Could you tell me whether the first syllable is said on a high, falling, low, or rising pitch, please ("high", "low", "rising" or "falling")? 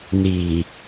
low